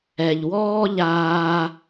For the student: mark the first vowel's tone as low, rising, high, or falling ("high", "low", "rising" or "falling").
low